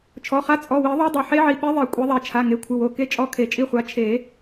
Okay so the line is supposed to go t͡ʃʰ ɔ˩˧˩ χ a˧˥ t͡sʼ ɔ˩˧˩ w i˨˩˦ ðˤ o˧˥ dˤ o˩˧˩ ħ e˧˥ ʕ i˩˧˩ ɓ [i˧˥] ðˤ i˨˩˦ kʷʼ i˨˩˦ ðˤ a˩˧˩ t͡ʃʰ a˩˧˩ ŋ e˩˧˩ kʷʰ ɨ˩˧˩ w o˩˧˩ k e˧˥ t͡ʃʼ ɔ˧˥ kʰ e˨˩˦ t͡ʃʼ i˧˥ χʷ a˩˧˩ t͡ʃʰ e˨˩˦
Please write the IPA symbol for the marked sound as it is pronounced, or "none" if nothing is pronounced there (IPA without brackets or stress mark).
e˧˥